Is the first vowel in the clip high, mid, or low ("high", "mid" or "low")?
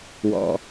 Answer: mid